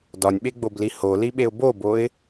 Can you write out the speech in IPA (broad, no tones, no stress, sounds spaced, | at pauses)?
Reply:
d ɒ nʲ ɓ e ɡ͡b o b l i h o l i ɓ e ʊ̯ b o b o ɪ̯